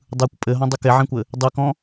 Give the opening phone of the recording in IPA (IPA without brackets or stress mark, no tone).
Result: dˤ